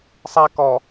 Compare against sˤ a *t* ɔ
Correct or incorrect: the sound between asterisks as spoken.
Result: incorrect: k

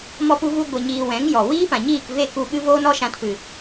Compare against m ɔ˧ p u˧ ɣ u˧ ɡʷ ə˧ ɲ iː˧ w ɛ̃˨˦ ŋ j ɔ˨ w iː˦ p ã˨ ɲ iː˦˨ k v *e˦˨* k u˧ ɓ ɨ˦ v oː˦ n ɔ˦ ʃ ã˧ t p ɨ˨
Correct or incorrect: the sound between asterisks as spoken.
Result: correct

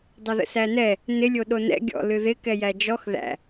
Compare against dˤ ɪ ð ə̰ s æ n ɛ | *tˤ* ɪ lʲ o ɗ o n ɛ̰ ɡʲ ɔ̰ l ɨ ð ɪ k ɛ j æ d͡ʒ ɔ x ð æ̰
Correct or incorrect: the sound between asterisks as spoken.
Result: incorrect: n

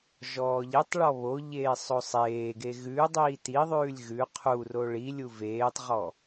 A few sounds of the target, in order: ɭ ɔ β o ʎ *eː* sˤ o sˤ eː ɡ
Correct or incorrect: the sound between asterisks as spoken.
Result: correct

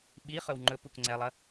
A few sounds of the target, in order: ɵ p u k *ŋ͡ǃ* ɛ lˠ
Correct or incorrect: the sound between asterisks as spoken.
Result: incorrect: ŋ͡ǀ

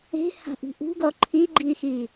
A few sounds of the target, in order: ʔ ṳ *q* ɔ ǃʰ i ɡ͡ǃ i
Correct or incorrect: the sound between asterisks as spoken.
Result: incorrect: ɡ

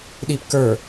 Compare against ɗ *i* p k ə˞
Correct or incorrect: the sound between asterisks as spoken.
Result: correct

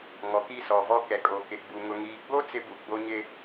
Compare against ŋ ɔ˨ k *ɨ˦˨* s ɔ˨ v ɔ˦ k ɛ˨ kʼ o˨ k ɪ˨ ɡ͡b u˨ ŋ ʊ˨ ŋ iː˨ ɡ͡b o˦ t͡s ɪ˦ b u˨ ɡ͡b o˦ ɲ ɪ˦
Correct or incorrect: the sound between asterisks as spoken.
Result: incorrect: i˦˨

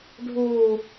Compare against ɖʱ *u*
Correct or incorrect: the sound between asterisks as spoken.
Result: correct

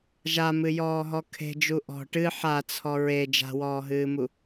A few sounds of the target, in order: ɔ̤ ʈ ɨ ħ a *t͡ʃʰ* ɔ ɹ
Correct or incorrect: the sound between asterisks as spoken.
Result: incorrect: t͡sʰ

